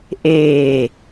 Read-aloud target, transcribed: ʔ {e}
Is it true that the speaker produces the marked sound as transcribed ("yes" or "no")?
no